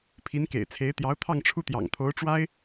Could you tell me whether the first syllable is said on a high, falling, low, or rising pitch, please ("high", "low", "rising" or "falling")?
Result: rising